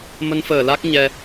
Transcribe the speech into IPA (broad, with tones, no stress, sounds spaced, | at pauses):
m ə˧ n f əː˧˩ l a˦˥ k̚ ɲ ɛ˧